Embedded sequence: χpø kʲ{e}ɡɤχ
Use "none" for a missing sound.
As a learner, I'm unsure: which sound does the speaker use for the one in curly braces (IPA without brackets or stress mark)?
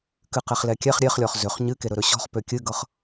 ɨ